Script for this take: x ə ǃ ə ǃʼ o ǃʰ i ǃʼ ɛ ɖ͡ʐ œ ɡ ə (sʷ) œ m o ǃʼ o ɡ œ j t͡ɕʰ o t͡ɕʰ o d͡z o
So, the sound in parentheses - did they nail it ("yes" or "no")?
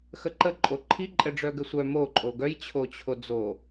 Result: yes